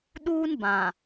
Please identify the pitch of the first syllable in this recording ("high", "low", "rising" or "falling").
high